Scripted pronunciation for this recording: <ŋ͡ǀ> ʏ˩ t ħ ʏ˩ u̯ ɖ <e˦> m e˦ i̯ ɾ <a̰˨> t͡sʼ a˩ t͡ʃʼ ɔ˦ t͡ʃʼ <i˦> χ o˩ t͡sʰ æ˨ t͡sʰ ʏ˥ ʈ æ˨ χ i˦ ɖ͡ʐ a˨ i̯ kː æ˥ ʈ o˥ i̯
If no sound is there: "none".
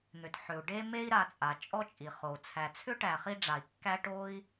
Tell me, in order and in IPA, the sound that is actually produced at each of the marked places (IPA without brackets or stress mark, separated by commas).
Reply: n̪, e˦, a˨, i˩